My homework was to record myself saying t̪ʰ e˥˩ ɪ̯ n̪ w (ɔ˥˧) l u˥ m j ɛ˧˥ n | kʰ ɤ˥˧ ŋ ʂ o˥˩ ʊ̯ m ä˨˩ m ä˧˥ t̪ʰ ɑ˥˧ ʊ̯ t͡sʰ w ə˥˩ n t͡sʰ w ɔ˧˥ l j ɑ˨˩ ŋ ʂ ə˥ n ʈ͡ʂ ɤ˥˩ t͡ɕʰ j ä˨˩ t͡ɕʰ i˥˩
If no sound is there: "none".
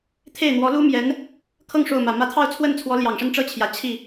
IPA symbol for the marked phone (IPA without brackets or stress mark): ɔ˧˥